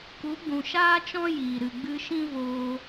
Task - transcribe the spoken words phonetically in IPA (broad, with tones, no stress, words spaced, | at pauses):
ku˨˦ɡ͡bũ˨ʃaː˦t͡ʃɔ̃˦ jiː˨ ɾɨ˨ɡ͡bɨ˧ʃĩ˦ voː˧